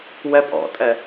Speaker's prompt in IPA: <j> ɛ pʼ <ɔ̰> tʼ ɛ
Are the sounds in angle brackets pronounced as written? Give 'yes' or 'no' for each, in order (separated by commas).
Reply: no, yes